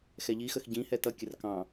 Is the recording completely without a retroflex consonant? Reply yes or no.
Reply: yes